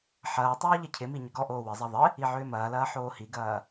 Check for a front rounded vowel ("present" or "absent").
present